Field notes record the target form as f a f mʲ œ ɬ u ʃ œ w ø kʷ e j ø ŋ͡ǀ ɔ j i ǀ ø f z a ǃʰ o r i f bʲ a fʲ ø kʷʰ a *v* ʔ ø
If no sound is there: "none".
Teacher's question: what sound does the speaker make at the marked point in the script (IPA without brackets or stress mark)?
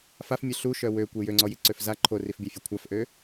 f